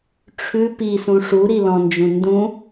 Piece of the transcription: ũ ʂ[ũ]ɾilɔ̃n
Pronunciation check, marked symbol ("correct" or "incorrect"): incorrect